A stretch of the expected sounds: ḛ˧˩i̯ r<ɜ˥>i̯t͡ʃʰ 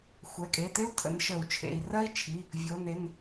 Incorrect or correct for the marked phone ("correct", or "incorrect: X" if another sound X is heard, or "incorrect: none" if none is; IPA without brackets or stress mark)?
correct